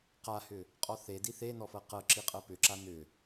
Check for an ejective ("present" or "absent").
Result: present